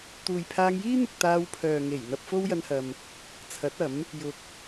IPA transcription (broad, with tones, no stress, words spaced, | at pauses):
t̪uː˨jpʰaː˧ŋjiː˥n̪ʊ˨k̚ t̪aː˧wpʰœː˨ŋe˨˩j n̪ɐ˧p̚fo˥wjɐ˧nhɐ˨m | t͡sʰɐ˨˥t̚ɐ˨˥m | jʊ˨k̚